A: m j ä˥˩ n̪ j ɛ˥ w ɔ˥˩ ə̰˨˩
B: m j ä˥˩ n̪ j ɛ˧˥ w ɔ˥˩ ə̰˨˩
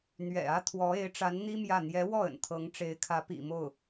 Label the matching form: B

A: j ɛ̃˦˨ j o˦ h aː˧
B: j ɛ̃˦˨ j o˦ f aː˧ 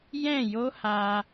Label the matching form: A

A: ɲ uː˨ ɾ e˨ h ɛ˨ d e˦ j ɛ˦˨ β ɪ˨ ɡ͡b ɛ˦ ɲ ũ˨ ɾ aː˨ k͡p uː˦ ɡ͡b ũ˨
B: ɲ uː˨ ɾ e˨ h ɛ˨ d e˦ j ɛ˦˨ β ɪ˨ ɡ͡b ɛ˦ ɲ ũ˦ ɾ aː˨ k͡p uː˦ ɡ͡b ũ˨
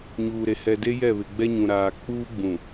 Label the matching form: A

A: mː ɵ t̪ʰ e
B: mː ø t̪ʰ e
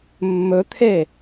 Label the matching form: A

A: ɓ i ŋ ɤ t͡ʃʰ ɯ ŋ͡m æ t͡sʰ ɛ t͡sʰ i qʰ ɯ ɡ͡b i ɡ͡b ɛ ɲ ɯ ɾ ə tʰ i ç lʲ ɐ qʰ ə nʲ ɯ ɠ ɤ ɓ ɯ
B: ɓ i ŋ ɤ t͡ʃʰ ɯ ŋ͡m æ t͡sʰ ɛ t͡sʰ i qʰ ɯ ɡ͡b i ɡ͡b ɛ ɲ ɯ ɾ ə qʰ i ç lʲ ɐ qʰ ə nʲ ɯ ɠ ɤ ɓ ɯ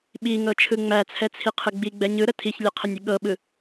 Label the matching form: A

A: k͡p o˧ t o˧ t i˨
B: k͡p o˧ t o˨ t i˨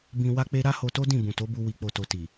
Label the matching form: B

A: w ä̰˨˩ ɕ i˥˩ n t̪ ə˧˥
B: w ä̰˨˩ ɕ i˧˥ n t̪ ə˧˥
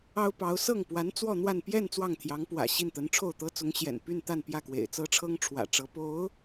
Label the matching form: A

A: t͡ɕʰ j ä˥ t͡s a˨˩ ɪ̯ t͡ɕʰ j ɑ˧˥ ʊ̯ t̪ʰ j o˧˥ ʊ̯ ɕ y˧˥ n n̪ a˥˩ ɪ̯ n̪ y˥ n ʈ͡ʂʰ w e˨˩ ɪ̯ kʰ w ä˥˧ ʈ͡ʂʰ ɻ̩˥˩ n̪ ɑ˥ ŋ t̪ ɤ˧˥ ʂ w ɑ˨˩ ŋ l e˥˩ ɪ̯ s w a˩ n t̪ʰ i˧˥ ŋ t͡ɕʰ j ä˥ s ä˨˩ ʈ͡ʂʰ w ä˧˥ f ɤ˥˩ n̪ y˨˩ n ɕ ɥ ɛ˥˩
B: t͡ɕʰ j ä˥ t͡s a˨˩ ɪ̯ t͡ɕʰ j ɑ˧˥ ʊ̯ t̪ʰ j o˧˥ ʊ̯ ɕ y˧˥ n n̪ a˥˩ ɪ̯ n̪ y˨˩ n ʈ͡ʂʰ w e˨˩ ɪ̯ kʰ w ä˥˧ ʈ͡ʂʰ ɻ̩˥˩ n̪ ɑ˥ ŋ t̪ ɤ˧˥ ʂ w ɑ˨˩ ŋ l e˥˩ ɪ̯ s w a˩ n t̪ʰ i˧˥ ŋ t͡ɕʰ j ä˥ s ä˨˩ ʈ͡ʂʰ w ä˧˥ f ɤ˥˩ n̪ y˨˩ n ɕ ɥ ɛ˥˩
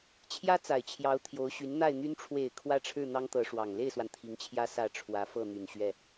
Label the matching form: A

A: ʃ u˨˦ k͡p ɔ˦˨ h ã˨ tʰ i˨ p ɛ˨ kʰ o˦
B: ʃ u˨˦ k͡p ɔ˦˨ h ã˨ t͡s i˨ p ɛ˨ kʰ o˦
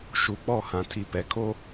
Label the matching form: A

